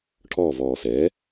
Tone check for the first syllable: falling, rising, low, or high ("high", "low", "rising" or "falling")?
falling